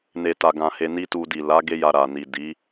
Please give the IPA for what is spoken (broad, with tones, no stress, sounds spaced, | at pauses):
n e˨ t a˨ ɡ ã˨ h e˧ n i˦ t u˧ d i˨ l a˨˦ ɡ e˦ j a˧ ɾ a˨ n i˨ d i˨˦